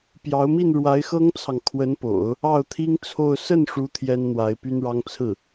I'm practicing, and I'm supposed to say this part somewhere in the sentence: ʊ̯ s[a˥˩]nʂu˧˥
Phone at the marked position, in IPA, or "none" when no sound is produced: ə˥˩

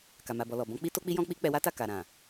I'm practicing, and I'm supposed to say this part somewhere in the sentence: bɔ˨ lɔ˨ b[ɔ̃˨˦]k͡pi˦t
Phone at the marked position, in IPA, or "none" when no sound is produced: ɔ̃˨˦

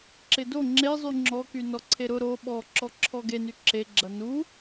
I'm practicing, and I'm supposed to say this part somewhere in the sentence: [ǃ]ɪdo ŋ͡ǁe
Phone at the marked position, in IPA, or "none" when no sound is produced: ǁ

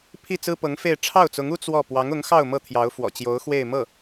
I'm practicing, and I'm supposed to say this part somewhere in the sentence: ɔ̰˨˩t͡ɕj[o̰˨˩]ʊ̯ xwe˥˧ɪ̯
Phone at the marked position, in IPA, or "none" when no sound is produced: o˧˥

